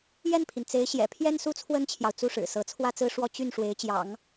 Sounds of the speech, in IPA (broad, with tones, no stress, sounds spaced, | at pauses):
j ɛ˥˩ n pʰ i˩ n t͡s e˧˥ ɪ̯ ɕ j ɛ̰˨˩ pʰ j ɛ˥ n s u˥ t͡sʰ w ə˥ n t͡ɕʰ j ɑ˨ ʊ̯ t͡s u˥˩ ʂ ɻ̩˨˩ s ɤ˧˥ t͡sʰ w ä˥˧ t͡s ɹ̩˥˧ ʂ w ɔ˥˧ t͡ɕ y˥˩ n ʂ w e˧˥ ɪ̯ t͡ɕ j ɑ̰˨˩˦ ŋ